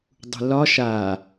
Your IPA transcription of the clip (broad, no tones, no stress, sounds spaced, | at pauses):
dˤ ṳ l ɒ ʃ a